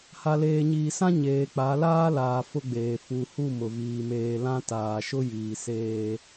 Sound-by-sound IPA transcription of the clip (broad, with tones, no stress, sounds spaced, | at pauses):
h a˨ l eː˨ ɲ iː˨ s ã˦ ɲ eː˨ k͡p a˨˦ l aː˦ l aː˨ f ʊ˦ ɡ͡b eː˨ f u˨ h u˦˨ m ʊ˨ v iː˨ m eː˨ l ã˦ t aː˨ ʃ ʊ˦ j iː˨ s eː˦